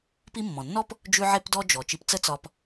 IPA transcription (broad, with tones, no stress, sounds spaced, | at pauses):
p i˦ mː ɔ̃˩ nː ɔ˥ p | d͡ʒ ʉ˥ ʕ e˥ p d ɔ˥ d͡ʒ ɔ˩ t͡ʃ i˨ p t͡s ə˦ t͡s ɒ˨ p